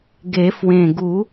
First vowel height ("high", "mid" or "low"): mid